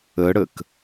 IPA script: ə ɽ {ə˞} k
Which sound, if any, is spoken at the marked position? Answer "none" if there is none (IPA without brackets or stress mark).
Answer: ə